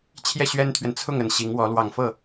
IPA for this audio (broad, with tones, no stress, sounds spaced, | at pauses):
t͡ɕʰ j ɛ˥˩ ɕ ɥ ɛ˥ n t̪ʰ ɥ ɛ˨ n t͡sʰ ʊ˥˩ ŋ ə˨˩ n ɕ i˧˥ ŋ w ɔ˧˥ l w ɑ˨˩ ŋ f ɤ˥˩